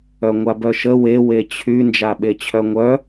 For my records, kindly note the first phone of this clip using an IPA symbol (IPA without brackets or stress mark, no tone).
œ